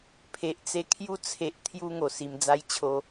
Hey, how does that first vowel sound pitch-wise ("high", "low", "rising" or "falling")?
low